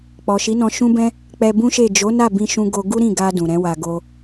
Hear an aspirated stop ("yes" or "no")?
no